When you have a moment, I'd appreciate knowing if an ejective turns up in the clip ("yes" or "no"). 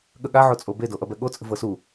yes